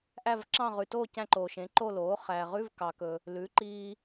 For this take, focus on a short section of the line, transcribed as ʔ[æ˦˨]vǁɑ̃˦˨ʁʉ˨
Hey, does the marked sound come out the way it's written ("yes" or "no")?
yes